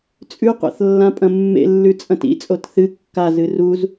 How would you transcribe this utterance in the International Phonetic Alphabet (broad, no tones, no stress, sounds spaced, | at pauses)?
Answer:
t͡sʼ ʉ qʷ a̰ θ lː ã pʼ ɐ̃ mː ḛ lː ʉ t͡sʼ ɐ̃ t ḭ t͡sʼ o t θ ɨ kː a z ɨ r u z